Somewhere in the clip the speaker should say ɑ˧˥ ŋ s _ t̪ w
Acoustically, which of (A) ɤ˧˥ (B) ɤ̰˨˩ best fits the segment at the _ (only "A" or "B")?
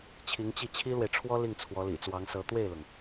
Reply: A